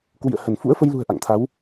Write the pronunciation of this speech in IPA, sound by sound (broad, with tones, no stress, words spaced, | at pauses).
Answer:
kwḭ˧˨ə̯hə˧˩n fṵ˧˥ə̯fə˧jlṳ˨˩ə̯ ʔa̰˧˨ŋt̪ʰa˨˦w